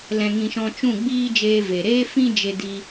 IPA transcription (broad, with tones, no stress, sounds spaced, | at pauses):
l ɛ̃˧ ŋ ĩ˧ ʃ ɔ̃˧ t͡ʃ ũ˦˨ ɡ͡b iː˦ d͡ʒ eː˧ v e˨ ɾ eː˦ f ĩ˦ d͡ʒ e˧ d i˧